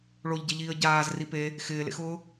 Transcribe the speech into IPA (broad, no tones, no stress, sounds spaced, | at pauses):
ɭ o ʎ ɟ ɛ ʎ iː ə̯ ɟ aː z r i p e | x ɪː l ḛ x ʊː